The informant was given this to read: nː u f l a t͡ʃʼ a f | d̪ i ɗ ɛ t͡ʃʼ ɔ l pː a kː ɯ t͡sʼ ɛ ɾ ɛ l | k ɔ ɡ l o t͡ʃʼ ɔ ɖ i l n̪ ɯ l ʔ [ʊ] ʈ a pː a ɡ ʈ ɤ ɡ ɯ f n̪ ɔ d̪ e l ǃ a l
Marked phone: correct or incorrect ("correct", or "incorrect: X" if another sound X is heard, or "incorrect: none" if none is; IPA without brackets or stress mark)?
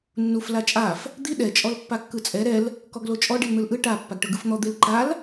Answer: incorrect: ɯ